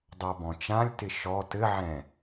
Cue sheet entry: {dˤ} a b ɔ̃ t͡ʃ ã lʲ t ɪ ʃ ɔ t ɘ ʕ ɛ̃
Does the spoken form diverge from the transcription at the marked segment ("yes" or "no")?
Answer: no